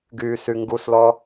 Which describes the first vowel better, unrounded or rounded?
rounded